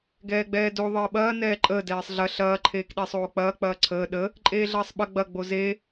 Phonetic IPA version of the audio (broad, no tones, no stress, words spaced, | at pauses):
ɡɛːɡ͡bɛːdo ðˤəːɓɐː nɛːǃʼəː dɛːsˤɮɐ ɬɐː ǃʰeːkɗesˤoːk͡pɐː k͡pɐːǀʰəː ɗə | ǃʼeːɮɐːsˤɓɐ ɡ͡bɐ ɡ͡boze